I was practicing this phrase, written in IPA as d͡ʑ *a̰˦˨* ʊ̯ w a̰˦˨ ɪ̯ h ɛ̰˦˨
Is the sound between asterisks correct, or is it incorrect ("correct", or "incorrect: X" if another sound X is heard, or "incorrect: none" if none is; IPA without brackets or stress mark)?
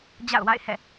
correct